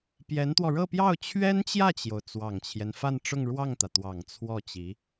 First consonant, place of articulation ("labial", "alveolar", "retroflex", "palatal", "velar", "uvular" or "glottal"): labial